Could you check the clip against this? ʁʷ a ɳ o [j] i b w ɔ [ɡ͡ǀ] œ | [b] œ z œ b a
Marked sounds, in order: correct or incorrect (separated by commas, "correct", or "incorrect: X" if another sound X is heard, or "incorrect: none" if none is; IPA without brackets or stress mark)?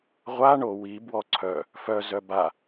incorrect: w, incorrect: ǀʰ, incorrect: f